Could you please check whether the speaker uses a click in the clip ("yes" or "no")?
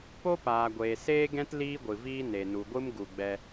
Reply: no